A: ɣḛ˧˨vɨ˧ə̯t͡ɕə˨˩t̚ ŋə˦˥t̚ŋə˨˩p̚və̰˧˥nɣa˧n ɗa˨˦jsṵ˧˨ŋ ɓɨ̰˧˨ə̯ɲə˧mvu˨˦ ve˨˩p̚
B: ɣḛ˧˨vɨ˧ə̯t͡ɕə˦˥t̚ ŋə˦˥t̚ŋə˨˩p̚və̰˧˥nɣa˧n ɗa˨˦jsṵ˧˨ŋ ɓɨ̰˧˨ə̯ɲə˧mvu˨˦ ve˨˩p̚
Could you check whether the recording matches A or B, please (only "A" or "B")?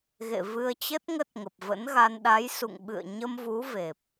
B